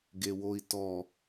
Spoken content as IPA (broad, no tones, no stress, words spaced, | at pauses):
ɡewoi̯tɔ